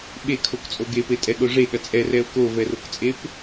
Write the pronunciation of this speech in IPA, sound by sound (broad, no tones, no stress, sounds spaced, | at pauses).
ɓ e kʰ o k t͡sʼ o ɡ e p e tʼ ɛ ɠ o ʐ e ɠ ɐ t͡sʼ ɛ r ɛ o̯ k o v ɛ r o k t͡sʼ e p